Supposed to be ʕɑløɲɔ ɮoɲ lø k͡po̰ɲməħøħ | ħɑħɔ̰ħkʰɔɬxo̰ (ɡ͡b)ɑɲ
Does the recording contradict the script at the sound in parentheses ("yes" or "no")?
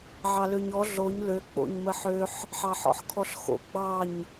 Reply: no